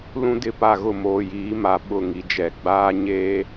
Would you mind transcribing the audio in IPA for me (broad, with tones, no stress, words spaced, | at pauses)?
lũ˦dɪ˦˨pa˦˨ɣʊ˦˨ moː˨jiː˨˦ma˨ ɓʊ˦˨ŋi˨d͡ʒɛ˨ ɡ͡baː˦ ɲeː˦